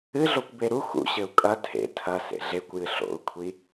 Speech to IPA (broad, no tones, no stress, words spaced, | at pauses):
ɨɮokʷbe ɾu xṵɕɘu̯ kʼɐ tʰḛ tʰɐsḛ ɮekʷjɨ ɬo̰u̯kʷʰi